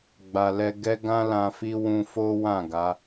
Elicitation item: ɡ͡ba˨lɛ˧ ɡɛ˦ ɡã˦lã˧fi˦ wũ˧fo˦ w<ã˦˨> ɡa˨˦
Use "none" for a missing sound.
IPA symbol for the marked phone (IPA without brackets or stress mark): ã˦˨